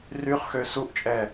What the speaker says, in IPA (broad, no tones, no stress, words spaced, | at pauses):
ryχxø suʔt͡ʃʼɛ